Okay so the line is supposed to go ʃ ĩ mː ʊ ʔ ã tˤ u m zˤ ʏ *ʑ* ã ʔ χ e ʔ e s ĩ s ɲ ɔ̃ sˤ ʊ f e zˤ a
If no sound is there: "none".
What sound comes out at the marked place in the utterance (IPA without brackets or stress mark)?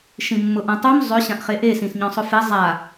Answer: ɕ